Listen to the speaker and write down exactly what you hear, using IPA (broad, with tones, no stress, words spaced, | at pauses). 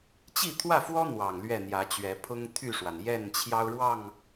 t͡ɕi˥˨t̪ʰwä˥˨fwɔ˦ n̪wɑ˨˩ŋlɥɛ˥˨n̪jä˨˦t͡ɕɥɛ˨˦ pʰʊ˦ŋt̪ʰy˥˨ʂwa˩n jɛ˥˨nt͡ɕʰjɑ˦ʊ̯ɻwɑ˥˨ŋ